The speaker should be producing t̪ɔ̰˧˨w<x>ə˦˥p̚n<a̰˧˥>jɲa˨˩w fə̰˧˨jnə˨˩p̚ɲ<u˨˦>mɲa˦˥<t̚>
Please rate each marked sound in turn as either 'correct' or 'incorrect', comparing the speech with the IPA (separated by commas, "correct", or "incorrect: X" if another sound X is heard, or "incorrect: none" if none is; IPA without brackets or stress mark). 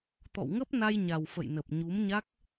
incorrect: ŋ, incorrect: a˧, correct, incorrect: k̚